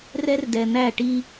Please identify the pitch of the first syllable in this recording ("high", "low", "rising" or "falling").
high